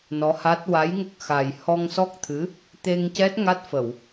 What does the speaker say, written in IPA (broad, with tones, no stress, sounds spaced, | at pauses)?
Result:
n ɔ˧˥ h a˦˥ t̚ w a˧˥ j ŋ ə˦˥ k̚ x a˨˩ j h ɔ˧ ŋ s ɔ˦˥ k̚ t̪ʰ ɨ˧˥ | t̪ e˧ ŋ c ɛ˦˥ t̚ ŋ a˦˥ t̚ f ə˨˩˨ w